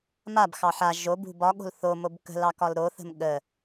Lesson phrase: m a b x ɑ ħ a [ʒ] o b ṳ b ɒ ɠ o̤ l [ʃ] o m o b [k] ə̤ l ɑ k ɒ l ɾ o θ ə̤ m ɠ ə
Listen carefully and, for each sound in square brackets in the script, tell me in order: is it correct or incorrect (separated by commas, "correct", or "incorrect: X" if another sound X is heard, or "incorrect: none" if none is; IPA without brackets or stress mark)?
correct, incorrect: θ, correct